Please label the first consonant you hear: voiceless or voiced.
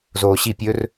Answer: voiced